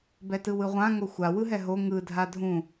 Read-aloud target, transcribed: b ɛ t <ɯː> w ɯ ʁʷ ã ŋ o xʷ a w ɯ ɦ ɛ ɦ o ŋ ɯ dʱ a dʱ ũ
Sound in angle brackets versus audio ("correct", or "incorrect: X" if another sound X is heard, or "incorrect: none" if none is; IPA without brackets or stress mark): incorrect: ɯ